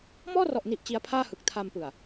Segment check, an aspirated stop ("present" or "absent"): present